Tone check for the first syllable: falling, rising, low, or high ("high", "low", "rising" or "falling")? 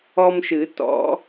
high